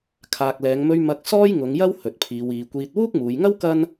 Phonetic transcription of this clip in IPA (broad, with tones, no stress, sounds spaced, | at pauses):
kʰ aː˨ k̚ l ɛː˨˧ ŋ m ɵ˧ ɥ m ɐ˧ k̚ s ɔː˥ j ŋ ʊ˨˧ ŋ j ɐ˥ w h ɵ˨ t̚ pʰ iː˨˧ w iː˨˧ kʷ iː˧ t̚ w uː˥ k̚ m uː˨˧ j ŋ ɐ˥ w k ɐ˥ n